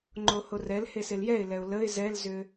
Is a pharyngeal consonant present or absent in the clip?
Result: absent